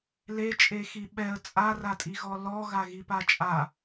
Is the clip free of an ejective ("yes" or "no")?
no